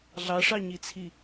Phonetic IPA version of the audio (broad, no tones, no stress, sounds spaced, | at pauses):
ɮ ɑ ʂ ɑ ɲ i t͡sʰ i